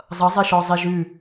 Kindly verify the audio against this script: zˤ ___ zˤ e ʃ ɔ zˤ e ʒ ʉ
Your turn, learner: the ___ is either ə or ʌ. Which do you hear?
ʌ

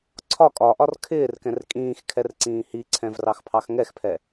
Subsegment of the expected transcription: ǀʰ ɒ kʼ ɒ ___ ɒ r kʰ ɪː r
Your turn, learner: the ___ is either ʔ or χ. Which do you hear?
ʔ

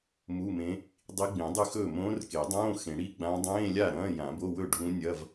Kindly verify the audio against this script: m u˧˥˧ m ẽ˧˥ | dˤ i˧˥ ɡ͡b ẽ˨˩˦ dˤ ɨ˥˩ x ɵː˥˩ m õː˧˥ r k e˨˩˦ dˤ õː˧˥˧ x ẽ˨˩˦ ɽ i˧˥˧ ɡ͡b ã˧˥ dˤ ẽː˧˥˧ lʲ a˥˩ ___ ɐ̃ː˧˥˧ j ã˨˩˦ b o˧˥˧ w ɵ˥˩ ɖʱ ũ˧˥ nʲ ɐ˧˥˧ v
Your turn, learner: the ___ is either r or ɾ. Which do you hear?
ɾ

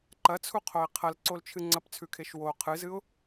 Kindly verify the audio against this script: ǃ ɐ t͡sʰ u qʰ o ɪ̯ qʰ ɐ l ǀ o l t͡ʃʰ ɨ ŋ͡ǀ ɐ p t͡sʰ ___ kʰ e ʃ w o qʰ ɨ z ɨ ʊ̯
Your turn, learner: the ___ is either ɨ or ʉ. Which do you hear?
ʉ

